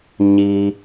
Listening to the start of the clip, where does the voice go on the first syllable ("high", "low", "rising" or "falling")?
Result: high